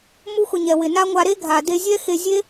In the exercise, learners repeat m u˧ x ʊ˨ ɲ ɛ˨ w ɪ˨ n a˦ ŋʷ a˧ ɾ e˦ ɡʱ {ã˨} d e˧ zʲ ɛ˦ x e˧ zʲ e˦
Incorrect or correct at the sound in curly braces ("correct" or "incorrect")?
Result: incorrect